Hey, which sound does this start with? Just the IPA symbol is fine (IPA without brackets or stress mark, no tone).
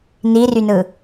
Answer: n